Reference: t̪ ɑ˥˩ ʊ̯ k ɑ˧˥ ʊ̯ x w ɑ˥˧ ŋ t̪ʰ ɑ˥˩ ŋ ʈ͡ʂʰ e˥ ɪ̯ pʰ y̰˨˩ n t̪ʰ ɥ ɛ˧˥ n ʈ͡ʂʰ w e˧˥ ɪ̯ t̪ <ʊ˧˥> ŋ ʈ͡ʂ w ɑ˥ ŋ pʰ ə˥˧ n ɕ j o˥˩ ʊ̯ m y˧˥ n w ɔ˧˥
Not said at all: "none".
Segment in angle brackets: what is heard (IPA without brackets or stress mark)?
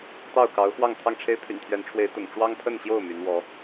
ʊ̰˨˩